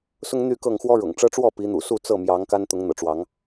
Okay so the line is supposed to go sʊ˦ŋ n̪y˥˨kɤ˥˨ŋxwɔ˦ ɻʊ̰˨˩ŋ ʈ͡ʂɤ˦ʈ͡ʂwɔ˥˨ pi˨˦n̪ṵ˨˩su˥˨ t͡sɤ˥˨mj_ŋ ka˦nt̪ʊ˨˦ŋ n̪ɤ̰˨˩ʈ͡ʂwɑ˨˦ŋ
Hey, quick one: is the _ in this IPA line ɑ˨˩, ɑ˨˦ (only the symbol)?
ɑ˨˦